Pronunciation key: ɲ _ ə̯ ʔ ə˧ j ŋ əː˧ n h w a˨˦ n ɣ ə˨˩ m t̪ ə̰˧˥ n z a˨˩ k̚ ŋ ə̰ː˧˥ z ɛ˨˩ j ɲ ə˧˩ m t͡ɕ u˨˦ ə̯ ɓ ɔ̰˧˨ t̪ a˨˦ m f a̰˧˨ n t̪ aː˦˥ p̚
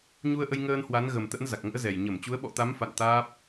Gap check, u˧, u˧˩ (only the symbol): u˧